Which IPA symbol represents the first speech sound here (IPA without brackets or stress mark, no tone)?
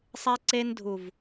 sˤ